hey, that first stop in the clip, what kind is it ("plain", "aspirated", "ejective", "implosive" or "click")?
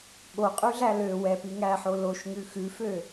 implosive